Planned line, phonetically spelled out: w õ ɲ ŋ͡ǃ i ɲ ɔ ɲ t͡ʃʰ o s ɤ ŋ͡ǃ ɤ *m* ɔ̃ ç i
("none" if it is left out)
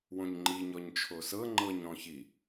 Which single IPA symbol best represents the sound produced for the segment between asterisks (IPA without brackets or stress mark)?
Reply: ɲ